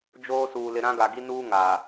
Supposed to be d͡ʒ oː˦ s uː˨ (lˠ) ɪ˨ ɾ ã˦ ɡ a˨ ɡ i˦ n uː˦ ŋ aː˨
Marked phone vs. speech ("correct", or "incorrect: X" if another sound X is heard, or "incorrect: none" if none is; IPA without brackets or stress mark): incorrect: l